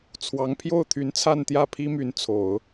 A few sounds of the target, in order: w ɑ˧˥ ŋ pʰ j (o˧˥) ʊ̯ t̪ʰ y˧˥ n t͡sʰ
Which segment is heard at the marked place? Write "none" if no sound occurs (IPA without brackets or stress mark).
o˥˩